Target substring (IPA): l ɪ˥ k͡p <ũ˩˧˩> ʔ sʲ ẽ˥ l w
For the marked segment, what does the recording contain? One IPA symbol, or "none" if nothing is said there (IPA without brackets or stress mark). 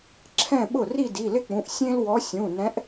ũ˩˧˩